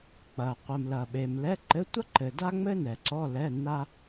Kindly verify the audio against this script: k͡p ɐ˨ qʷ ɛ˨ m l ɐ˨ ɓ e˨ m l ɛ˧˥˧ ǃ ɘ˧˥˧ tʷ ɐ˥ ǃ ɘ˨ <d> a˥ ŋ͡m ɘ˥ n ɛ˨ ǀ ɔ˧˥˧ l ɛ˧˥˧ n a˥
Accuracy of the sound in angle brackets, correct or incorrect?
correct